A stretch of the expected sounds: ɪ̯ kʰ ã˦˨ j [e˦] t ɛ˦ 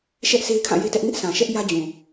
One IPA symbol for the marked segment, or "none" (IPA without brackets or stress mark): e˦